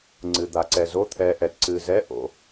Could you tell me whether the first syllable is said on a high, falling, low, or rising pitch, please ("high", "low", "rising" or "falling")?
low